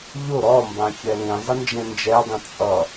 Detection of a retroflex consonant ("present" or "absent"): absent